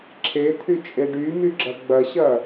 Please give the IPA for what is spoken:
ǁʰ e t̪ʰ y t͡ʃʼ e ɖ y m y ɡ͡ǁ ɐ ɡ͡b ɐ ɕ ɐ

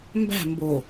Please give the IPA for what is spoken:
m b æ̤ m b o

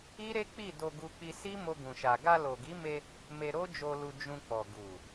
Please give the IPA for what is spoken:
i˦ ɾ e˦ k͡p i˦˨ d o˧ ɡ u˧ k͡p i˧ s i˦ m o˧ ɡ ũ˨ ʃ a˨ ɡ a˧ l o˨ ɡ i˨˦ m e˧ | m e˧ ɾ o˦ d͡ʒ o˧ l u˧ d͡ʒ ũ˧ k͡p ɔ˨ ɡ u˨

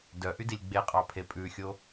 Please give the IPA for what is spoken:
d œ ʔ y d i lʲ ɡ͡b e qʼ ɑ pʰ e pʼ ʉ xʲ o

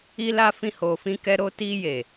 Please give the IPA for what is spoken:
i˧ l a˧ f ĩ˧ h o˨ f ĩ˧ k ɛ˧ ɾ o˧ t i˧ j e˨

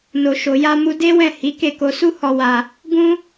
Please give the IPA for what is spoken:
n o˨ ʃ o˨ j a˧ m u˧ d e˦ w ɛ̃˦˨ h i˨˦ k e˦˨ k o˧ s u˦ h ɔ˧ w a˧ | ɡ ũ˦

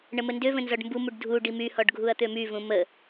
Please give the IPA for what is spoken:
ɳ ə m ə n d ø v ə̃ n z ɔ ɖ m b u m u ɖ dʱ u ɖ i m y h ɔ ɖ ɡʱ u ɐ̯ t̪ ø m y v ũ m ə

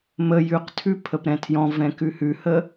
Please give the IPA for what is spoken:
m ə j ʉ q tʰ ʉ pʰ ə p ɾ ɛ̃ tʰ j ɔ̃ v ɛ̃ k ʉ h ʉ h ə

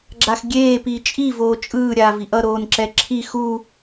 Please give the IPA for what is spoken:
ɡ͡ǁ a x ɡʲ eː p iː t͡ʃʼ i v oː t͡ʃʼ ɯː ɾʲ aː v i ʔ ʌ ɾ oː n ǁ ɛ ǁʰ i x u

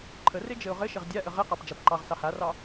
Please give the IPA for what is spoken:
ǃʰ ə r e d͡ʒ ɘ ʊ̯ ʁ ɘ ʃ ɪ ʁ dʲ a ʔ ə ʁ ɪ q ɑ p d͡ʒ a p ǃ ɑ ʁ s ɑ h a r ɑ

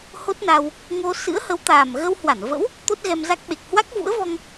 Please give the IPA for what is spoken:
h o˦˥ t̚ n a˧ w | ŋ o˧ s ɨ̰˧˥ ə̯ h ə˨˦ w t̪ aː˨˩ m ɣ ə˧ w h w a˧˩ n v ə̰˧˥ w | t̪ o˦˥ t̚ ɣ ɛ˧ m z a˦˥ k̚ ɓ e˨˩ k̚ h w a˦˥ k̚ v ṵ˧˥ ə̯ v ɔ˧ ŋ

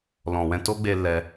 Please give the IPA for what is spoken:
l ɔ̃˨ w ɛ̃˧ t o˦ ɡ͡b e˧ l ɛ˧

